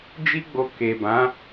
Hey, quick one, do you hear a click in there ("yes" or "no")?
no